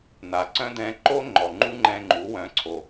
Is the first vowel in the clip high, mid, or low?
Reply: low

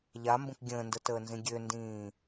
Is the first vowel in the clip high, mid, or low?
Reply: low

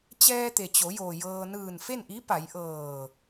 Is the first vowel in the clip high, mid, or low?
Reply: mid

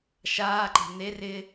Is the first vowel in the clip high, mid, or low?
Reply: low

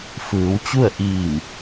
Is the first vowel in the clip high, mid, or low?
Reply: high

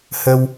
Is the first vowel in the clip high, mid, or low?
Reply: mid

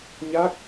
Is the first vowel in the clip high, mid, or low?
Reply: low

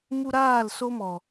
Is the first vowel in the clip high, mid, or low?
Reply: high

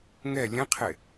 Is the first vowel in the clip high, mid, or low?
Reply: mid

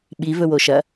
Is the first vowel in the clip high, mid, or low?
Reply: high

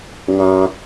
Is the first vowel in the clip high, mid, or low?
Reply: low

